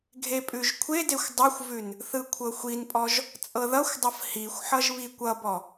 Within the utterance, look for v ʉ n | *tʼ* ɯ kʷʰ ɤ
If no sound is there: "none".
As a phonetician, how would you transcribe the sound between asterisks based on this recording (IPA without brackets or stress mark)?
θ